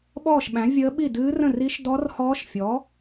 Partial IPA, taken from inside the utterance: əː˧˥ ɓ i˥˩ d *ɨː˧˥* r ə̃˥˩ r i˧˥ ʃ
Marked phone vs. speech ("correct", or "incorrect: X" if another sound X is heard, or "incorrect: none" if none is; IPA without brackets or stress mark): correct